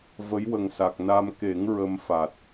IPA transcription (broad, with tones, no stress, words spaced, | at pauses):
və˧˥jwə˨˩ŋsa˨˩k̚ na˧m ke˨˩˦ŋ ɹə˧m fa˨˩t̚